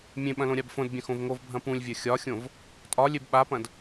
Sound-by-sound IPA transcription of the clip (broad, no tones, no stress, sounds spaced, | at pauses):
mʲ ẽ ɓ ɐ̃ l õ ɾʲ a b f õ d bʲ ɐ̃ x õ v ŋ o v bʱ ɐ̃ p ũ lʲ vʲ ɐ xʲ ɒ xʲ õ v | tʼ ɒ lʲ e b ɓ a p ɐ̃ d